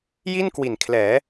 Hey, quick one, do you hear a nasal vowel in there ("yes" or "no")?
no